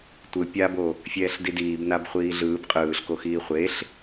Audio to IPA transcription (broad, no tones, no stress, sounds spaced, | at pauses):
tʷ ɯ pʲ a b o | fʲ ɛː ɬ d i d iː b n a b χʷ iː ɮ ɯː b qʼ ɯː ɬ k o x iː χʷ e ɬ